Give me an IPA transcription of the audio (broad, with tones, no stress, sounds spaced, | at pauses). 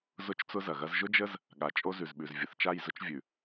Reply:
z ʊ˦ t͡ʃ t͡s ʊ˦ z ɐ˨ ɣ ɐ˦ z ʒ ʊ˦ d͡ʒ ə˦ z | ɠ a˨ t͡ʃʼ o˦ z ʉ˨ z ɓ ʉ˨ z vʲ ə˨ θ t͡ʃ a˦˨ j z ʊ˦ t͡ʃ vʲ ʉ˨